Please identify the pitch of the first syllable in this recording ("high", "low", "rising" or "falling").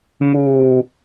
low